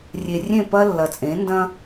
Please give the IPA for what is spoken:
rʲ e˨ rʲ ẽ˦˨ p ɐ˦ lː ɐ˨ t͡sʼ ẽ˨˦ n d ɐ̃˦

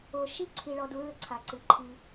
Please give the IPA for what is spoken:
o˨ ʃ i˦˨ ǀʰ i˨ ɭ ɔ˧ d u˨˦ ɹ ɘ˦ ǀʰ a˨ ǀ ɨ˨ ǃʰ i˧

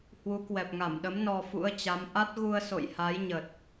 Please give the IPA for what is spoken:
h w u˨˦ k w ɛ˨˩ p̚ ŋ a˧˩ m ɗ ə˨˦ m n ɔ˧ f ṵ˧˥ ə̯ t͡ɕ a˨˦ m ʔ a˦˥ t̚ ɣ u˧ ə̯ s o̰˧˨ j h a˨˦ j ɲ ə˨˩ t̚

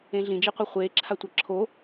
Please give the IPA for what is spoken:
ẽ ɮ ĩ d͡ʒ i qʷ ɜ χʷ eː ǁʰ a tʷ ɜ ǁʰ o

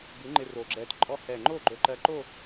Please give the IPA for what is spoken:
b ʉ˨˥ ŋ͡ǃ ɪ˧ r o˨˩ ɡ͡ǁ ɛ˧ t ǃʼ ɔ˧ h ɛ˨˩ ŋ͡ǃ o˥˩ ɡ͡ǃ ɵ˧ ǃ ɜ˧ ǃ o˥˧

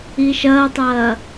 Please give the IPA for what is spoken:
i ʃ ɐː tˤ ɐː

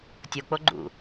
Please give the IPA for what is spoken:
tʲ o k͡p o ɡ͡ǃ ṵ

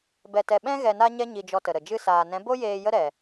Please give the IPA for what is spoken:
b ɛ˧ t ɛ˧ ɓ ɛ̃˦ ɣ ɛ˧ n a˦ ɲ ɛ˦ ɲ i˧ d͡ʒ ɔ˧ t ə˨ ɾ ə˨ d͡ʒ ɨ˧ s aː˨ n ɛ̃˨˦ b o˦ j eː˧ j ə˦ ɾ ɛ˨

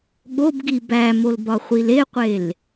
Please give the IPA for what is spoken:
ɠ o b ɡ i b æ m o l b ɒ χʷ i l e qʷ e l

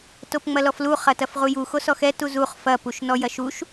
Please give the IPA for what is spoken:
t o p ŋ͡m ɐ l ɔ f l u χ ɐ t ɐ f ʁ u j u x o s ɔ x ɛ t u z u χ f ɐ p u ʃ n ɔ j ɐ ʃ u ʃ

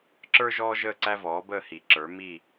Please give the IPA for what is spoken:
ǁ ə˞˦ ʒ ɔː˦ ʒ əː˥˨ ǀ æ˦ v ɔː˩˥ b əː˥˨ h i˨˩˦ ǁ ə˞˩˥ m i˥˨

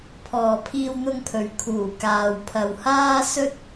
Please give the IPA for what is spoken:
pʰ ɔː˨ pʰ iː˧ w n̪ ʊ˧ ŋ pʰ ɵ˨ ɥ kʰ uː˨˩ k aː˨ w pʰ ɐ˨ w h aː˥ s ɵ˥ t̚

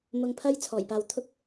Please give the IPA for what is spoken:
m ʊ˧ ŋ pʰ ɐ˥ j t͡sʰ ɔː˨˩ j p aː˨ w t̪ʰ ʊ˥ k̚

